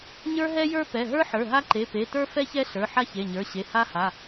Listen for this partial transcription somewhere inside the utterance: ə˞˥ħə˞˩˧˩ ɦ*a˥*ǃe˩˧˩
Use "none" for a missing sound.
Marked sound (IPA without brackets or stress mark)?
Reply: a˥